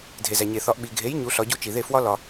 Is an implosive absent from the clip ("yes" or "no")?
no